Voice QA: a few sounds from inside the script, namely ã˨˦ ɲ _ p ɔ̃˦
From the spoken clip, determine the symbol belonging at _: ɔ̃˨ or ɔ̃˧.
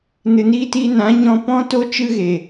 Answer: ɔ̃˧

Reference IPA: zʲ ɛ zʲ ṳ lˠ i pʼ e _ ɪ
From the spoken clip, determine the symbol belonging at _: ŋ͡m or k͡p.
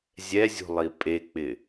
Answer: k͡p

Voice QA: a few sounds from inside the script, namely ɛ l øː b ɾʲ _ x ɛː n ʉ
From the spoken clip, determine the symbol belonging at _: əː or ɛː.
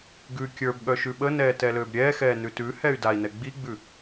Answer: ɛː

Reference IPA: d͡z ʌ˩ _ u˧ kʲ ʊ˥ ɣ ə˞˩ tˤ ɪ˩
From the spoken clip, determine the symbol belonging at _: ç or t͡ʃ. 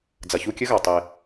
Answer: ç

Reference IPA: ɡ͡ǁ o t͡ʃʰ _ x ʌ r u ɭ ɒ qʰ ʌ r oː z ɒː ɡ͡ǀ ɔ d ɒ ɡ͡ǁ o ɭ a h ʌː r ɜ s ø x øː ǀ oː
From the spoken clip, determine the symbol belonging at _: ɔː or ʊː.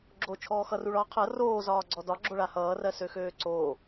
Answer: ɔː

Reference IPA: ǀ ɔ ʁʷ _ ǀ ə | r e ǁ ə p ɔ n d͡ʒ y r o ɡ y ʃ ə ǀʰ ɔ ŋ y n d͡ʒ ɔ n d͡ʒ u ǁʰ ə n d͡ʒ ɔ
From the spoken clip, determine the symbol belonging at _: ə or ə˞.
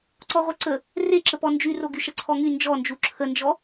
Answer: ə˞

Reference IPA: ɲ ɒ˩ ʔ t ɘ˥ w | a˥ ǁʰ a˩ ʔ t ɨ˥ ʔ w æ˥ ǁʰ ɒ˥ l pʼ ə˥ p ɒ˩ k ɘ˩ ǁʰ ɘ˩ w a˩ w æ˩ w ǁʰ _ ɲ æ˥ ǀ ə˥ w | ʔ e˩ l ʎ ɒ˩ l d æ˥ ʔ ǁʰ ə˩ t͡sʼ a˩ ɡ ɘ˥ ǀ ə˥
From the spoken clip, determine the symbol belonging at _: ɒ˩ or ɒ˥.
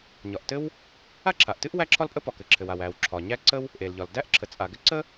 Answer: ɒ˩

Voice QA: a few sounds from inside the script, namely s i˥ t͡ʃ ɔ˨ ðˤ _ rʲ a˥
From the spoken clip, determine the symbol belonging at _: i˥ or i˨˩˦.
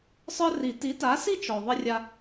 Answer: i˥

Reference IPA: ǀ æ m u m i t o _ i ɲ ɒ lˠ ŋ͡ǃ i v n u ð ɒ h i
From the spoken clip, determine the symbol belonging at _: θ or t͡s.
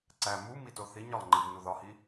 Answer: θ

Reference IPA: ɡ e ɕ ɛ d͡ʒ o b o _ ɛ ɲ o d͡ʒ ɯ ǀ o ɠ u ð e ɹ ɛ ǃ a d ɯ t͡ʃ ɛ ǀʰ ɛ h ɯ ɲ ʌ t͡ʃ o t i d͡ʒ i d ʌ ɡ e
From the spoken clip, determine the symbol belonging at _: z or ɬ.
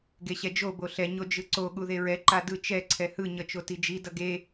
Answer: ɬ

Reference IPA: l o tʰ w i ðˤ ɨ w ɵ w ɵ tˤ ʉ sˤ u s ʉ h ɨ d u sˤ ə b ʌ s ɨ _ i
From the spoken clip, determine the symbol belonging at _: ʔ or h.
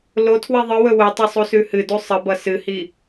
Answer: h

